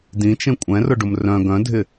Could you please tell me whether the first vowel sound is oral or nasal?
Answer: nasal